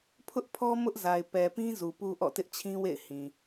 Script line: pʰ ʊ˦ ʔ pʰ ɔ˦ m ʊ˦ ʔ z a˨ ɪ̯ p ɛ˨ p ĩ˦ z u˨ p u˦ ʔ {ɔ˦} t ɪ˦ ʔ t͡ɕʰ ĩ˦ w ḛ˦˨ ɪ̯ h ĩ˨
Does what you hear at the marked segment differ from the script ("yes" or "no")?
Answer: yes